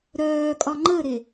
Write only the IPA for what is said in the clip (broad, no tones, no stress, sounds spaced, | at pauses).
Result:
ɾ œː kʼ ɒ ŋ͡ǃ ə ɾ e